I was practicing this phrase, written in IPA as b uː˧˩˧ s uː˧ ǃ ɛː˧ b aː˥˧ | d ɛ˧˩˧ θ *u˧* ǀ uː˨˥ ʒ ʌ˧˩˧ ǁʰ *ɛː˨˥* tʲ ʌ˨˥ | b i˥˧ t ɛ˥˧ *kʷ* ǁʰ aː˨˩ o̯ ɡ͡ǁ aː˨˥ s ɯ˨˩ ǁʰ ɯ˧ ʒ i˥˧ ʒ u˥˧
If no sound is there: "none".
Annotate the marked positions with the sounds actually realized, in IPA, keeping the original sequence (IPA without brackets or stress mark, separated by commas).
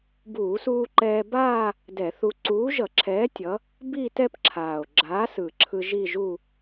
u˧, ɛː˨˥, p